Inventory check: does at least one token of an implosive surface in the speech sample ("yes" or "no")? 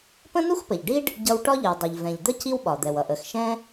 yes